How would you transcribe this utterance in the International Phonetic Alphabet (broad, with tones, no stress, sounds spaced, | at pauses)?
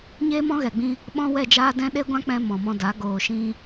ɲ eː˦ m ɔ̃˦ ɣ ɛ˨ ɡ͡b ĩ˧ | ɓ ɔ̃˦ w ɛ˦˨ d͡ʒ aː˦ d ɛ̃˦ ɗ e˦ ɡʷ ã˦ k͡p ɛ̃˧ m ɔ̃˨ m ɔ̃˧ d a˨˦ ɡ oː˨ ʃ ĩ˧